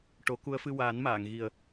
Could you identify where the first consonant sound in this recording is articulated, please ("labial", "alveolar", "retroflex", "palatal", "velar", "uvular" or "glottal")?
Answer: retroflex